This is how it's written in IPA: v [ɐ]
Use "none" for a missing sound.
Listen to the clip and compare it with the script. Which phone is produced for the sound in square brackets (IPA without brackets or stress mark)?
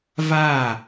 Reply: a